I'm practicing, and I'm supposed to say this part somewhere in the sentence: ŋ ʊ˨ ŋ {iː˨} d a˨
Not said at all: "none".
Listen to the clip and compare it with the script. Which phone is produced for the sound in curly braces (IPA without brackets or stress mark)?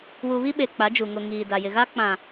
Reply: iː˨